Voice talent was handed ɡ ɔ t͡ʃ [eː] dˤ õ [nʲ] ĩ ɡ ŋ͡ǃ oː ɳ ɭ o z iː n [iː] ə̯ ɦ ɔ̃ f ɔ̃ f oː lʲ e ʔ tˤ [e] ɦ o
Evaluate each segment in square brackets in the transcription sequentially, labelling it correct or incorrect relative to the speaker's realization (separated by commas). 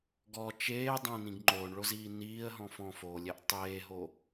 correct, incorrect, correct, incorrect